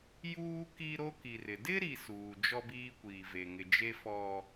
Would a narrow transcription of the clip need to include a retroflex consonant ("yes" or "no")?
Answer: no